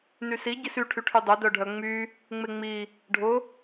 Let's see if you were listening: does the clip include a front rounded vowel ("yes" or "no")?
yes